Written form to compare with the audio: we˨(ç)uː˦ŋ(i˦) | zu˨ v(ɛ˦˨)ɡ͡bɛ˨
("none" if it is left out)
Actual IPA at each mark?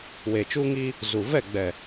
t͡ʃ, i˦, ɛ˦˨

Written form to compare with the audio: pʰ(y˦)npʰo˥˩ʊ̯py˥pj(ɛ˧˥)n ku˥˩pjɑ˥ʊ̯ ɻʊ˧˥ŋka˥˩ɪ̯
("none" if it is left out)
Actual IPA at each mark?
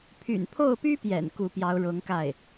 y̰˨˩, ɛ̰˨˩

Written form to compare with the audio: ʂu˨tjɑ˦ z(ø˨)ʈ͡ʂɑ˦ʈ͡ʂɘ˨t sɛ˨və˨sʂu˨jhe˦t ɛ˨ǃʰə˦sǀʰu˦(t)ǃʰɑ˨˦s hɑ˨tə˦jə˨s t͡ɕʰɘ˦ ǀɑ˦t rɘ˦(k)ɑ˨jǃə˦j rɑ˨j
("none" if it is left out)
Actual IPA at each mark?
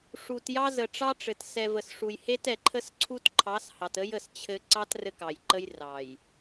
ə˨, t, k

